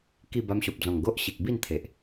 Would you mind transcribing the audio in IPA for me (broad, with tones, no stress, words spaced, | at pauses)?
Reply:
ki˥˧ ba˧mɕo˨p̚d͡zɔ̃˨˩ŋ ɡo˦ʔ ɕi˨k̚bi˥˧nt̪ʰe˨ʔ